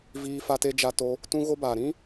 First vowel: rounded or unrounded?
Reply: unrounded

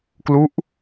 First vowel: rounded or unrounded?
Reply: rounded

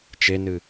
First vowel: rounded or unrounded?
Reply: unrounded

